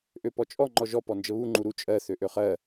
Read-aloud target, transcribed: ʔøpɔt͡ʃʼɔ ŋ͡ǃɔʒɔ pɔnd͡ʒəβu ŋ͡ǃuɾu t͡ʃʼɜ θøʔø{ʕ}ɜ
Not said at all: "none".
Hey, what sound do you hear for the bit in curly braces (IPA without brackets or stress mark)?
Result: χ